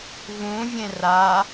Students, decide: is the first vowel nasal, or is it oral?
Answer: nasal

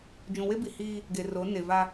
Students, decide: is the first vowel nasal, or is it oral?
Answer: nasal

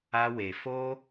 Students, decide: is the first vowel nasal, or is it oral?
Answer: oral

